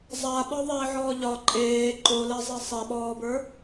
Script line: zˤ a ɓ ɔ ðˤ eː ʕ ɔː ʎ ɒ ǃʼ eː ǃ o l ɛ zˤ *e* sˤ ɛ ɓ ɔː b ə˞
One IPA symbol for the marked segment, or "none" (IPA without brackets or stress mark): e